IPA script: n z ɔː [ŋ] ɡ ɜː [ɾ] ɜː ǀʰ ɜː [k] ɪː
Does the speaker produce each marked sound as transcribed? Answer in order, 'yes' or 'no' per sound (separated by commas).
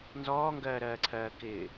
yes, yes, yes